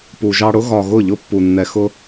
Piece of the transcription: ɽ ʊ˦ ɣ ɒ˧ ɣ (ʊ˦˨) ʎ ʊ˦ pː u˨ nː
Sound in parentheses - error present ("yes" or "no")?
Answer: no